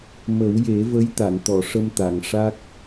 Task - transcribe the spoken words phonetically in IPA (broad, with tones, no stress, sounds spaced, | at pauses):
m ə˨˩˦ w j e˨˩˦ v ə˧˥ j t̪ a˨˩˨ n t̪ ɔ˨˩˨ ʂ ə˧ m t̪ a˨˩˨ ŋ ʂ a˦˥ k̚